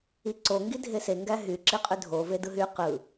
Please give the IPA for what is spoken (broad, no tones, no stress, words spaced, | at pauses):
iǀo ŋɡidʱese ŋɡæɦy ǁiqʼydʱo vedɯɦy qɯ